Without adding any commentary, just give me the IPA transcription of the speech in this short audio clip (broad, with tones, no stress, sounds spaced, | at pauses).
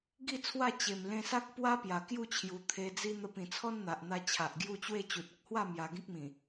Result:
ɡ i˥˧ t͡sʰ w a˥˧ t͡ɕ e˨˩ m l ẽ˧ s a˦ k̚ p w a˦ p j a˨˩ k j u˥˧ t͡ɕʰ j u˨˩ t̪ʰ e˧ d͡z i˦ n̪ ə˧ p ĩ˨˩ t͡sʰ ɔ˦ n n̪ a˨ ʔ n̪ a˧ t͡ɕʰ a˨ ʔ ɡ j u˥˧ t͡ɕ w e˥˧ t͡ɕ u˨ t̚ ə˦ k̚ h w a˥˧ m j a˧ ɡ ĩ˦ k̚ m ĩ˨˩